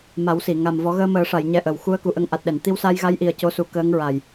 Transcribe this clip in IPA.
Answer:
m a˨˩˦ w s i˨˩˨ ŋ a˨˩ m v ɔ˨˩˦ ɣ əː˧ m əː˨˩˦ ʂ a˨˩˨ j ɲ ɛ˧ ʔ ə˨˩ w x u˧ ə̯ k u˨˩ ʔ ə˧ ŋ ʔ a˨˩ t̚ ɗ ɛ˨˩˨ n t̪ i˧ w s a˧ j ɣ a˧˥ j ʔ i˨˩ ə̯ c o˧˥ s u˨˩˦ k əː˧˥ ŋ ɹ a˨˩ j

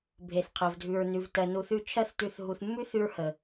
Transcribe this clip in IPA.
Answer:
bʱ e˨ θ qʰ ɜ˨ v dʱ ʉ˨ ɹ n ʉ˨ v t ɜ˨ n u˨ θ ʉ˧ t͡ʃʰ ɜ˧ θ t ʉ˨ θ ɦ u˨ θ mː ʉ˦ θ ʉ˧ ɹ h ə˨

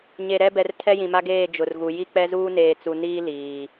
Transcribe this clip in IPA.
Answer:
ɲ e˨ ɾ ɛ˦ b ɛ˨ r tʰ ɛ˦ j ĩ˨ m a˦ ɡ eː˦˨ d͡ʒ ʊ˨ r ɣ u˨ j i˦ k͡p ɛ˦ z uː˦ n eː˨ t͡s u˨ n iː˦ l iː˨

